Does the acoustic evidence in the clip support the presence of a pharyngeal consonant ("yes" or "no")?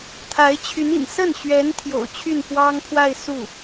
no